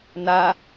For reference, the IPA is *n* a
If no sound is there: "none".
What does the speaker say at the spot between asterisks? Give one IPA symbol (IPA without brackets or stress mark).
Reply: n